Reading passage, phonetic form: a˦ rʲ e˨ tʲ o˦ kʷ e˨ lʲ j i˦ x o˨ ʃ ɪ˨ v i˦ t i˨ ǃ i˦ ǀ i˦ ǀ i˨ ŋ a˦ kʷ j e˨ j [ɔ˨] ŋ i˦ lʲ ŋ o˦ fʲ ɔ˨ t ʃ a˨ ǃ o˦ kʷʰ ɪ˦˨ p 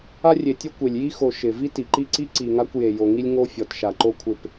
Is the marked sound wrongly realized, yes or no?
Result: yes